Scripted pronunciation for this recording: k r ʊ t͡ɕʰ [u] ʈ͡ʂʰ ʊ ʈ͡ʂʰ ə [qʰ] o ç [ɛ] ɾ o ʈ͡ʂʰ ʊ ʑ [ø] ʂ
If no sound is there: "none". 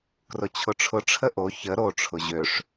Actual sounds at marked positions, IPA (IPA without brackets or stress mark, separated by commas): ʊ, ʔ, ə, ø